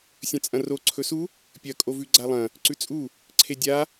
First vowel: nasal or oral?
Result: nasal